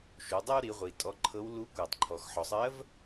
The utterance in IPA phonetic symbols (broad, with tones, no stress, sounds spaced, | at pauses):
ʃ u˩˧ dˤ o˥ w ɾ i˩˧ ʁʷ i˩ tʼ ɔ˧ ǃʰ ɤ˧˥ w l u˧˥ kʷ ɜ˩ tˤ ǃʰ ɔ˩ x ħ ɔ˩ sˤ ɜ˧˥ v